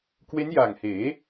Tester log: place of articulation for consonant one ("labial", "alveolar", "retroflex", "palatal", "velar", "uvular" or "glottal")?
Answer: velar